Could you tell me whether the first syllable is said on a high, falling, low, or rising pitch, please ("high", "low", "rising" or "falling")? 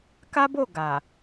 high